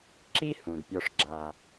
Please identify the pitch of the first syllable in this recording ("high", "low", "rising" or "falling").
high